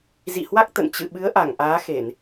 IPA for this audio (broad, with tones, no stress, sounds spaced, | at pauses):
z ḭ˧˨ h w a˦˥ k̚ t̪ ə̰˧˨ n t͡ɕ ɨ̰˧˨ ɓ ɨ˨˦ ə̯ ʔ a˧˩ ŋ ʔ aː˨˦ x e˧˩˨ n